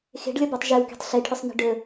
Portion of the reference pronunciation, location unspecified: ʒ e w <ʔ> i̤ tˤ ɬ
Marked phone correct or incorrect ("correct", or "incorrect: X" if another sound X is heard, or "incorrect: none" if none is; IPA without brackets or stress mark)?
incorrect: k